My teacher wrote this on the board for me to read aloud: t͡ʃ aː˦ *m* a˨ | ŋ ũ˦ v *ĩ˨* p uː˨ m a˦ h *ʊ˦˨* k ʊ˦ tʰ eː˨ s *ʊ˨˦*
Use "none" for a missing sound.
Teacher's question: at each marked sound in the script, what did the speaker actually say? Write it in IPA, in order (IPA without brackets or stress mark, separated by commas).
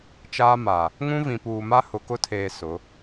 m, ĩ˨, ʊ˨, ʊ˨˦